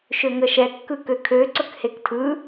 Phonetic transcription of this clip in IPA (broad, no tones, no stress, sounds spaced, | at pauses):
ʃ ø ŋ ə ʃ ɛ kː ɯ k ø kʰ ø ǀ ɵ k h e k tʰ ɯ